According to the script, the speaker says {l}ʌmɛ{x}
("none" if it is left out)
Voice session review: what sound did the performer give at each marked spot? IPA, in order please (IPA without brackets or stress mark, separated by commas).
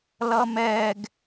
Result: l, ɡ